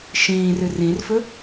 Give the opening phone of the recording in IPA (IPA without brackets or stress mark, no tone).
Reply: ʃ